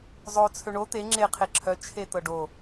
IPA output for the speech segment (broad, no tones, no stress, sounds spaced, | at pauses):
zˤ o t͡sʰ ø ɳ o t̪ e ŋ͡ǁ e qʰ e ǁʰ œ t͡ʃʰ e t̪ ɤ ɖ o